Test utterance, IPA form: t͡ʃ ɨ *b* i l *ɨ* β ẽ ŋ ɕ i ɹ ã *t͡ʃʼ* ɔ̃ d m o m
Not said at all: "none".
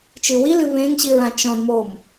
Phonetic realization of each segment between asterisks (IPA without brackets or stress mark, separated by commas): w, ɨ, t͡ʃ